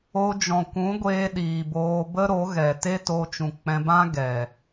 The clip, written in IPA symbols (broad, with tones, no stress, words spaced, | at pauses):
o˧d͡ʒɔ̃˨kʷũ˨˦ɡʷeː˧ ɗiː˨boː˧ bə˦ɾo˨˦ɣɛ˨ te˦to˧t͡ʃũ˨ k͡pɛ̃˧bã˦ɡɛ˨